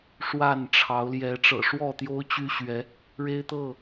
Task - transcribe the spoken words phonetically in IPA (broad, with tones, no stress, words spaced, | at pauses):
ʂwa˥˨n ʈ͡ʂʰɑ˨˦ʊ̯ ljɛ˨˦ʈ͡ʂɤ̰˨˩ʂwɔ˥˨t̪jo˦ʊ̯ t͡ɕy˦ɕɥɛ˨˦ | ɻe˦ɪ̯t̪ɤ˥˨